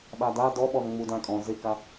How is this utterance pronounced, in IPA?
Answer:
ɓ a d a d ɔ ɓ ɔ n ŋ͡m u d ã kʼ ɔ̃ z ɪ k a

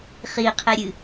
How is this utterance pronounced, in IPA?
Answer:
χ i qʰ e ɾʲ ɨ

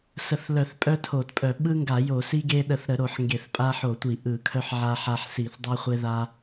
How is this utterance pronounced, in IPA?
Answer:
s ə˧˩˧ θ l œ˧˩˧ θ pʼ œ˦ tʰ o˧˩˧ t pʼ œ˧˩˧ ɓ ɯ˦ ŋ ɡ a˧˩˧ j o˧˩˧ s i˦ ɡ e˦ ɗ ə˧˩˧ θ ɾ ə˧˩˧ ɾ o˧˩˧ ħ ŋ ɡ e˧˩˧ θ pʼ a˦ ħ o˧˩˧ tʷ i˧˩˧ ʔ ɯ˧˩˧ kʰ œ˦ ħ ʕ a˦ ħ a˦ ħ s i˧˩˧ θ dˤ œ˦ χʷ e˦ ð a˦

